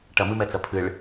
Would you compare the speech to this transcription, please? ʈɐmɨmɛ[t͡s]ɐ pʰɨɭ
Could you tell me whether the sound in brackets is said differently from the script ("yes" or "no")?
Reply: no